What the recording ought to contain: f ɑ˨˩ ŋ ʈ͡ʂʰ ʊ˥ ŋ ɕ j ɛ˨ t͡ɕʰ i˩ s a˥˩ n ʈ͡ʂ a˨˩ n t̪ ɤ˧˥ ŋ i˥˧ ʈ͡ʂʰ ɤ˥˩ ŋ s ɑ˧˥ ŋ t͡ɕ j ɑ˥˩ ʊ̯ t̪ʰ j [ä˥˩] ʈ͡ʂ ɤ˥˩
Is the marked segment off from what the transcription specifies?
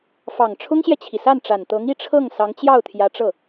yes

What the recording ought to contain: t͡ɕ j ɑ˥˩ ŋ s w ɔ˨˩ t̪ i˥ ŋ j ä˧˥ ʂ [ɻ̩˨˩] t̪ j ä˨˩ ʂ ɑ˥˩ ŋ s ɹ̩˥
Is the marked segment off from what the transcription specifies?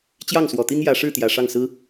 yes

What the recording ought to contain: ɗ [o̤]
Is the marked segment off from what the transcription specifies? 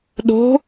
no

